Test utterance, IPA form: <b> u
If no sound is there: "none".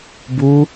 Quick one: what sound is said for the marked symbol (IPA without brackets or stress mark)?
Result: b